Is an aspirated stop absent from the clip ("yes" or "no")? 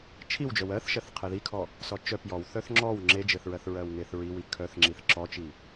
no